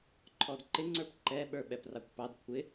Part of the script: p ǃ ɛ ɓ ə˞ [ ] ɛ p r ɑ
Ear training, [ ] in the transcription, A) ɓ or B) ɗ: A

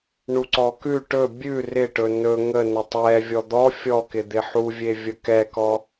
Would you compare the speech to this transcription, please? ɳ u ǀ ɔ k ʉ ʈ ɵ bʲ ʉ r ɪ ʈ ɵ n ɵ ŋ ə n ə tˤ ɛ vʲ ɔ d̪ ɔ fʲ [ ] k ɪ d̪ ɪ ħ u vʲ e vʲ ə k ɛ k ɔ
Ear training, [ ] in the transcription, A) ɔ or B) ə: A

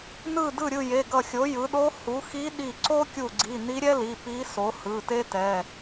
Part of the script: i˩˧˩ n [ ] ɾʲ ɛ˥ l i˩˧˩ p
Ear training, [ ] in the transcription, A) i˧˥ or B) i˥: A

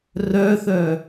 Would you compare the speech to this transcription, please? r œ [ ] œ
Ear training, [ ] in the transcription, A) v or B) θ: B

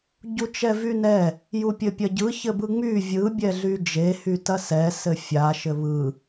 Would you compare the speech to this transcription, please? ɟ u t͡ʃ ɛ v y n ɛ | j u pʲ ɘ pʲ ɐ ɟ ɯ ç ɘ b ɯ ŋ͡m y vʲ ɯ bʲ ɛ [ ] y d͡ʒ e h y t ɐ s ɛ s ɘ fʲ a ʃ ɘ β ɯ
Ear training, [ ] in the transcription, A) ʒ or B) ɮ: B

